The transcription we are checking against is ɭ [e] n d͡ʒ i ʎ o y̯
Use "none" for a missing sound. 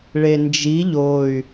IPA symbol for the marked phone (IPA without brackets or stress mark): e